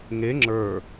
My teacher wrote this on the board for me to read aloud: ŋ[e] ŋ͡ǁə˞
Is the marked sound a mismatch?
no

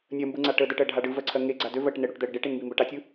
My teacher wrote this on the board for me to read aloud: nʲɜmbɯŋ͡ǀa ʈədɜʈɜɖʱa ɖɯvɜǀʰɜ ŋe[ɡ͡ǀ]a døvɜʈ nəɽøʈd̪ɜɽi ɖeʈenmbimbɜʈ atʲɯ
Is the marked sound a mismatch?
no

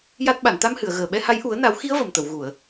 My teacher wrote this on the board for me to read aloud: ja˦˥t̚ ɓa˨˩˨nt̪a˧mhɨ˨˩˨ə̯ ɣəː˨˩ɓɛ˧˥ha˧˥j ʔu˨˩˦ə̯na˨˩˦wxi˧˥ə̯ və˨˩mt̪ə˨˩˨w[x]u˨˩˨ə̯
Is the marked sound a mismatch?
yes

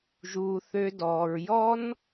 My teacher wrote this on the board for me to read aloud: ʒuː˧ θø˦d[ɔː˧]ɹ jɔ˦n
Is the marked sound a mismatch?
no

